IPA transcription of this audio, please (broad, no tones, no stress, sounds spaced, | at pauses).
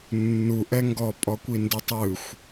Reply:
nː u ʔ ɛ ŋ ɡ ɔ pʼ ɔ kʷ i n d ɯ tˤ ɯ xʷ